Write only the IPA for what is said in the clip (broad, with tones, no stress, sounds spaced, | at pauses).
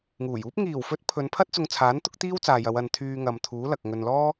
ŋ uː˨˩ j uː˥ p̚ ŋ iː˨˩ w f ɵ˨˥ t̚ pʰ ɵ˨˧ n pʰ ɐ˥ t̚ t͡s ʊ˧ ŋ t͡sʰ aː˨˥ n t̪ ʊ˥ k̚ t̪ iː˥ w t͡s aː˨ j ɐ˨˧ w ɐ˨ n t̪ʰ yː˧ ŋ ɐ˨ m t̪ʰ uː˨˥ l ɐ˨ k̚ ŋ ɵ˧ n l ɔː˥